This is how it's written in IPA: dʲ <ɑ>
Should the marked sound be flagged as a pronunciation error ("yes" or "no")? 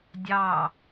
no